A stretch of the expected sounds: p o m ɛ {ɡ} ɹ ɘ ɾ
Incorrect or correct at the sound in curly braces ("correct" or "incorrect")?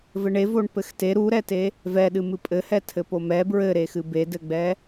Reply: incorrect